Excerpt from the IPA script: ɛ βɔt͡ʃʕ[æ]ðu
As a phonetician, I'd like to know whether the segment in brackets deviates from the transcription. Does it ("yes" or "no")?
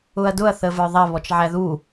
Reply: no